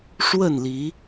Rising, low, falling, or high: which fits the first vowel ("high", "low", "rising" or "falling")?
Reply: falling